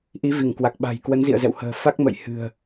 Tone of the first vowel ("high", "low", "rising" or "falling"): rising